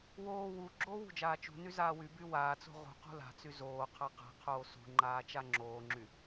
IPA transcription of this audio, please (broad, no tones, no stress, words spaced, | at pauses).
woː wu ɡ͡ǁoːwṳd͡ʒaː t͡ʃṳny zaːwyby waːt͡so̤ ʁṳ qṳla̤t͡sy zoː qʰaqa̤qʰoː sṳŋ͡ǃaː t͡ʃaŋ͡ǁoːŋ͡ǁy